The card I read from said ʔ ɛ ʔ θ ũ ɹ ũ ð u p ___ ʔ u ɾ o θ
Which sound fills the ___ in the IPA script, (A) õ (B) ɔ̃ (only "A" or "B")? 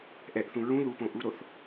A